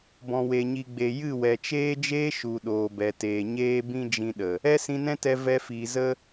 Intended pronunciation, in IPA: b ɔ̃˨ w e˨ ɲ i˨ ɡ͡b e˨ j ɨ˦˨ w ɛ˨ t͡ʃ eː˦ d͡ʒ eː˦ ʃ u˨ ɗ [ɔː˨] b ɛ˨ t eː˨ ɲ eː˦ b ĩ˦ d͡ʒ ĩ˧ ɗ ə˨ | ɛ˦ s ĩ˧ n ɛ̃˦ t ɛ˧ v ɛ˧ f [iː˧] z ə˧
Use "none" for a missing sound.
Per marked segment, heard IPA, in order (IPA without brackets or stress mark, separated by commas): oː˨, iː˨